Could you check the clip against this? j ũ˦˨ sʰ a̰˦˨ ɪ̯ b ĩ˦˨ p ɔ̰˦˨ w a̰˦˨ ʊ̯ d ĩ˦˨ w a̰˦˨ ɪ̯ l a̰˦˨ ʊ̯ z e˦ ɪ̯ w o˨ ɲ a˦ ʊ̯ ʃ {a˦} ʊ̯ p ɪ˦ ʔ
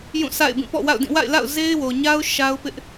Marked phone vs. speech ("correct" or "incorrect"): correct